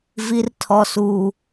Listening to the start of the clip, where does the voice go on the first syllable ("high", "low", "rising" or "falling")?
high